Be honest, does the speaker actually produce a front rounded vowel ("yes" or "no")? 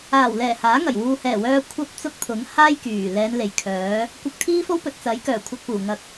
yes